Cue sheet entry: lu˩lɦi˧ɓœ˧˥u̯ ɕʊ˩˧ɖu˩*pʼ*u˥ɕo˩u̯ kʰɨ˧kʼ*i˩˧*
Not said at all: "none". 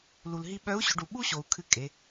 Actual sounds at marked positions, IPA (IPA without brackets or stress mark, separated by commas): ɓ, e˩˧